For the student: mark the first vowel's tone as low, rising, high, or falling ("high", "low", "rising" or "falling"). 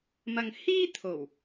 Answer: low